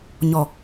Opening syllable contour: low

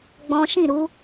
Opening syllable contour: high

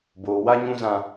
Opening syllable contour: low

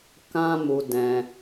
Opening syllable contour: high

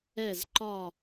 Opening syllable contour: falling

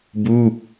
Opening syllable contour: falling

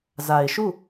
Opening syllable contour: low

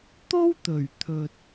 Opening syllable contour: high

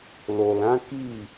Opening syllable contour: low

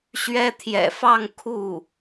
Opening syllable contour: high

